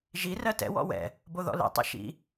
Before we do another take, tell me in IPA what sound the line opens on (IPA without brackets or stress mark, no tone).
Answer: ʒ